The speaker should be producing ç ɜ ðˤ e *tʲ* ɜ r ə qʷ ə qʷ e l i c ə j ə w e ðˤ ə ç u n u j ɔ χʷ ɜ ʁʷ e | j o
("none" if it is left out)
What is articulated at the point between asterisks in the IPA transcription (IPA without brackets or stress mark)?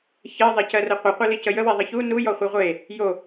c